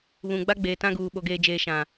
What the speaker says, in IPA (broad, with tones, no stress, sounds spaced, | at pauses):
β ũ˨ ɡ͡b a˦ ɡ͡b eː˨ t ã˦ ɡ uː˨ ɓ o˨ ɡ eː˨ d͡ʒ eː˨ ʃ ã˨